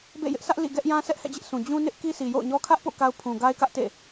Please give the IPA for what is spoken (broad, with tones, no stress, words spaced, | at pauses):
bḛ˦˨ jɪ˦ʔsʰä˦ʔ lḭ˦˨ ɡɛ˦ʔ jã˦ sɛ˦ʔhɛ̰˦˨d͡ʑɪ˦ʔ sʰũ˨ d͡ʑũ˦ nɪ˦ʔ ki˦sʰi˨jo̰˦˨ʊ̯ɲɔ˦ kʰä˦ʔpo̰˦˨ ka˦ʊ̯pʰũ˨ ɡa˦ɪ̯kä˦ʔtḛ˦˨